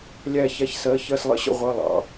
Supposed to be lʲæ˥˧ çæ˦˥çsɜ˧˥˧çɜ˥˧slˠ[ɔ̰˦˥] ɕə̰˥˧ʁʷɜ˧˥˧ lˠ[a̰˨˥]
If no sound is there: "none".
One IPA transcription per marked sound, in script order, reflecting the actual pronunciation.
ə̰˦˥, ɑ̰˨˥

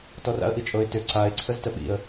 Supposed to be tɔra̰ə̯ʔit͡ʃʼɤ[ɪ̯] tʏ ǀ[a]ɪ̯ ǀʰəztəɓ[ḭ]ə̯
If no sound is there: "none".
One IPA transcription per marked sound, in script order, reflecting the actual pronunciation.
ɪ̯, a, ḭ

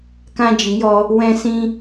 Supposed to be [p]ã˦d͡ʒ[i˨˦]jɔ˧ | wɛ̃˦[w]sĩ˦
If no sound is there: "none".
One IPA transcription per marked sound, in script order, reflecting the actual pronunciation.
k, i˨˦, none

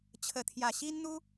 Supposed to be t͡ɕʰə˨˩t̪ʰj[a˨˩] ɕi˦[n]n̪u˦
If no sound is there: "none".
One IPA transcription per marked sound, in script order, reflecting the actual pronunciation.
a˨˩, n

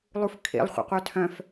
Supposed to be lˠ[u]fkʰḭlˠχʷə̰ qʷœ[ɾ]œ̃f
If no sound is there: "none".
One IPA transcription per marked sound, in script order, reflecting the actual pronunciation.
u, tʰ

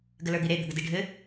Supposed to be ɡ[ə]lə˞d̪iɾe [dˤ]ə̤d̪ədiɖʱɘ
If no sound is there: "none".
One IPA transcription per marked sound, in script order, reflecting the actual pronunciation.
ə, d̪

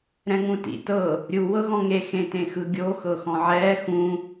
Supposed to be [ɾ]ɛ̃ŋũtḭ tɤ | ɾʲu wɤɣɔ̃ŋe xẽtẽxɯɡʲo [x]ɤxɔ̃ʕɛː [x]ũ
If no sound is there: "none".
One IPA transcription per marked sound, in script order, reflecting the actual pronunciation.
ɾ, x, x

